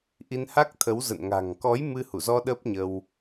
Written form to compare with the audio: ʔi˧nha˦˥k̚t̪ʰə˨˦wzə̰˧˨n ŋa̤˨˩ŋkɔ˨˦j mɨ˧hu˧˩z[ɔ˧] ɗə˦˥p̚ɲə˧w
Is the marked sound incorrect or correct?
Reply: correct